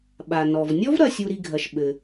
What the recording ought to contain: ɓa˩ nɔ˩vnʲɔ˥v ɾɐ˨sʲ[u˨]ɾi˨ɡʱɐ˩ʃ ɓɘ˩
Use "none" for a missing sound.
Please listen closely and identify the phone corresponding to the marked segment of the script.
u˨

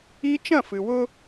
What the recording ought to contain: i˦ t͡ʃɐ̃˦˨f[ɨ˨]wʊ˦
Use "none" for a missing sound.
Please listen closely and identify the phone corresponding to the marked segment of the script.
ɨ˨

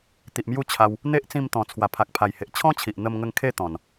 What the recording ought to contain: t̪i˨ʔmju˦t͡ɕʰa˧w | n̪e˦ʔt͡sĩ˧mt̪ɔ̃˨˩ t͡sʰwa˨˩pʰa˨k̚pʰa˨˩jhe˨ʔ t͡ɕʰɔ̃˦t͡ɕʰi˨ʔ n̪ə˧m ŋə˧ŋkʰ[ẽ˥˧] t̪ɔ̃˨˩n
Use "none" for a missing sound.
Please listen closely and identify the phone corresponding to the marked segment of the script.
e˥˧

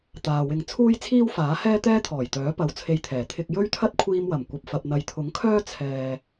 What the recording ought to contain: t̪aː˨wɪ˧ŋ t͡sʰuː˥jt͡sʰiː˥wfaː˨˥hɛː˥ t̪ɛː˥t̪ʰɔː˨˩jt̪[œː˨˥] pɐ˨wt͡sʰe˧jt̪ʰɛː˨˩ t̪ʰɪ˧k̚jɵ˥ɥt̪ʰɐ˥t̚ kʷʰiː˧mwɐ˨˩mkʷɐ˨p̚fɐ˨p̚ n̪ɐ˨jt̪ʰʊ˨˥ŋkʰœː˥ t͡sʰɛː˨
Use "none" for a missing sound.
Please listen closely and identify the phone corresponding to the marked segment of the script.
œː˨˥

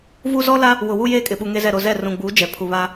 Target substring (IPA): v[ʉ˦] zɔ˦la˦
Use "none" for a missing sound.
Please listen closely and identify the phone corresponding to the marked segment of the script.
u˦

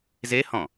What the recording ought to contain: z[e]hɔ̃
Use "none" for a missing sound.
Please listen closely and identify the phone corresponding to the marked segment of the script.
e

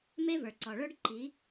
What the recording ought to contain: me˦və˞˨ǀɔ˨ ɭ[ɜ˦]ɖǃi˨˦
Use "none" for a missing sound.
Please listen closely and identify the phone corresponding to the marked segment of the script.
ə˞˦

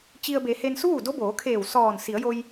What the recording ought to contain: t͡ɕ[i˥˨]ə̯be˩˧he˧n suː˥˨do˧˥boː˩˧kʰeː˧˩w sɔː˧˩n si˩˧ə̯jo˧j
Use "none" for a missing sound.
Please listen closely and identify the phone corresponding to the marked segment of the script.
i˧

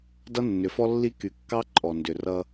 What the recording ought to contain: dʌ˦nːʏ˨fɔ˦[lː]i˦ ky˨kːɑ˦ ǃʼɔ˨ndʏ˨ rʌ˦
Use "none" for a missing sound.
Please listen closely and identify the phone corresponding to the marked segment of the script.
lː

